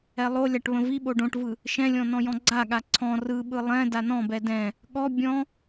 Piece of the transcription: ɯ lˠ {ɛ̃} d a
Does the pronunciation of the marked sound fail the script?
no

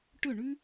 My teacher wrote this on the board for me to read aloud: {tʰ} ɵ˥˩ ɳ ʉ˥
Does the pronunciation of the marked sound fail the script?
yes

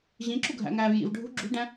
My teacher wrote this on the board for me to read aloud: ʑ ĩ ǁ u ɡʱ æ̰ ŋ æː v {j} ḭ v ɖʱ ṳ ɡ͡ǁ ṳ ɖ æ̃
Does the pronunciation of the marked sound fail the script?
no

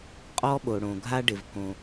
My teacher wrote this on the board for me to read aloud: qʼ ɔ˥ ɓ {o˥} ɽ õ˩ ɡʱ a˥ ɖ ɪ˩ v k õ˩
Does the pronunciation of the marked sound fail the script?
yes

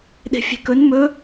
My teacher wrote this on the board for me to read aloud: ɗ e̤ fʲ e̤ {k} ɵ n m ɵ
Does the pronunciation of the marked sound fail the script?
no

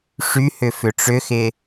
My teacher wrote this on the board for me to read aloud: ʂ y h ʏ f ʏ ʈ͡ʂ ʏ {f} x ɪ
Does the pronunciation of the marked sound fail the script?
yes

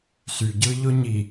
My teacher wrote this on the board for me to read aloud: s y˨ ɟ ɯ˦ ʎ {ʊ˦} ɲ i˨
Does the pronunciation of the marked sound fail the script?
no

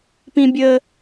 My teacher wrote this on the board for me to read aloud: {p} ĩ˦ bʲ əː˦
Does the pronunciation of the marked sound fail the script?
no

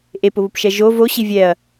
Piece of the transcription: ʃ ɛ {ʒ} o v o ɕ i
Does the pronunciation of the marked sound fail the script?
no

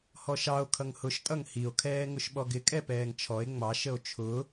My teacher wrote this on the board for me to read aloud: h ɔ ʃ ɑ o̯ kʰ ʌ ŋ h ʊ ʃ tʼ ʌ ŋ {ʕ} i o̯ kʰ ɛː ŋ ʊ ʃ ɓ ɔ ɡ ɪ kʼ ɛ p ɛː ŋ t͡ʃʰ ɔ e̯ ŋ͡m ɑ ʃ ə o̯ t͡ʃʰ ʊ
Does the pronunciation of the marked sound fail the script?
yes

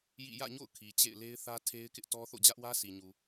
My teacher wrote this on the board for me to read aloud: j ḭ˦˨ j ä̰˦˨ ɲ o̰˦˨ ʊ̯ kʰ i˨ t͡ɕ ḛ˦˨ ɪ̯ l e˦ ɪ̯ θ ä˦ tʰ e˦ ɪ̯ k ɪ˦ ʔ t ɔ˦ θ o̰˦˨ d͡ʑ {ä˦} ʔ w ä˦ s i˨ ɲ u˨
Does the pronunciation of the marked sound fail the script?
no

